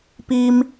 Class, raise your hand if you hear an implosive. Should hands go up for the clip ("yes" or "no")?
no